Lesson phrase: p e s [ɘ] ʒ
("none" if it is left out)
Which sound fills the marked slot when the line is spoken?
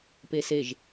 e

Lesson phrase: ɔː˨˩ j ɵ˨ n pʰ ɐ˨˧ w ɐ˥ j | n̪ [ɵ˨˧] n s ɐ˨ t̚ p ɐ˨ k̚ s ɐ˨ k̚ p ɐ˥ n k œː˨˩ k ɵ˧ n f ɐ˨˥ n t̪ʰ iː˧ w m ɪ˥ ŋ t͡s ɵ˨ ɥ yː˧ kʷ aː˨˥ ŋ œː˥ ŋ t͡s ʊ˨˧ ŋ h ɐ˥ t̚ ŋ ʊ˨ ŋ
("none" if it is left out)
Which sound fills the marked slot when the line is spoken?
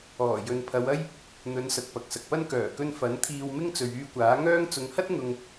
ɵ˨˧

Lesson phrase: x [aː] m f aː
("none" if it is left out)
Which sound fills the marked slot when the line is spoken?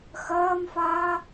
ɐː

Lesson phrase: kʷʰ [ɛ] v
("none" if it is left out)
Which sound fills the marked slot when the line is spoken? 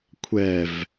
ɛ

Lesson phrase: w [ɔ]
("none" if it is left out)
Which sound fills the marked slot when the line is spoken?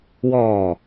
ɔː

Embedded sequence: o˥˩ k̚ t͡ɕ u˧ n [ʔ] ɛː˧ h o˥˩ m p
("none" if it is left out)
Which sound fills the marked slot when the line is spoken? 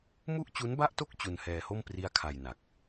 h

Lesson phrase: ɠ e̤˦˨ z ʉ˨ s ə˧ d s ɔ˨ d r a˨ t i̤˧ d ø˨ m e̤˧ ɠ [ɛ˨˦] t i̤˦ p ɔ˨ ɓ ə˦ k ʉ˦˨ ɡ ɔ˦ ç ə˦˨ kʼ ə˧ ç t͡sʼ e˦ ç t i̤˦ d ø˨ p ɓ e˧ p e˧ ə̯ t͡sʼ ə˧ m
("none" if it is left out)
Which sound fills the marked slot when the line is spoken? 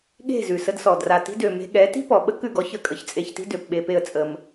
ɛ˨˦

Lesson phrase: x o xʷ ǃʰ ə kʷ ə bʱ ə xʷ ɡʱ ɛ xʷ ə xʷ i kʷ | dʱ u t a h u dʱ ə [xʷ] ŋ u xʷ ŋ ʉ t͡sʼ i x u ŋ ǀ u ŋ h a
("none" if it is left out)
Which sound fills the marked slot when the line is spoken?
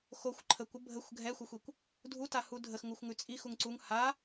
x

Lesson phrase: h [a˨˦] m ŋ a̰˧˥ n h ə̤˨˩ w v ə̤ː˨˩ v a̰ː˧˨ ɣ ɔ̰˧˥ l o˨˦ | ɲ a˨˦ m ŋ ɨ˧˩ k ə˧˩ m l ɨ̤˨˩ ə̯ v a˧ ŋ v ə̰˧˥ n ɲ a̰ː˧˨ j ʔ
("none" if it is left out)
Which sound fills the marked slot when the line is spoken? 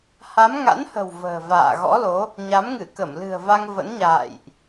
a˨˦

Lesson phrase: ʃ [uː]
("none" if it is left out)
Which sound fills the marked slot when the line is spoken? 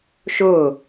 ʊː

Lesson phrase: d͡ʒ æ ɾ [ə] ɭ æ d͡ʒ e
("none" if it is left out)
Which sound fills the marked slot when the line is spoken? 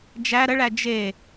ə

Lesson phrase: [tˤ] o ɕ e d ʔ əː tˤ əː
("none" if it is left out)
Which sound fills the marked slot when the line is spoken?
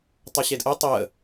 tˤ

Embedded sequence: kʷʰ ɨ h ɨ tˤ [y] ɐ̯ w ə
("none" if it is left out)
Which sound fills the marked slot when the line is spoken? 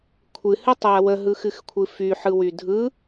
y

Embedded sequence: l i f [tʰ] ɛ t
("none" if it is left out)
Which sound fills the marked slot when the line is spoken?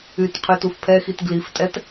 tʼ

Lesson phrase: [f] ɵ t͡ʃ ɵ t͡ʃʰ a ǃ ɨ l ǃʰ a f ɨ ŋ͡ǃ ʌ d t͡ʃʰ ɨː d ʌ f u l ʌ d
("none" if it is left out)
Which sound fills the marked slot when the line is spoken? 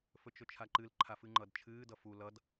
f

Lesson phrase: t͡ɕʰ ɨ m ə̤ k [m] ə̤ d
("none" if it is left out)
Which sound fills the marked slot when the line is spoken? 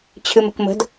m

